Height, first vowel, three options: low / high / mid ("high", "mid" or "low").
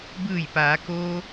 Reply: high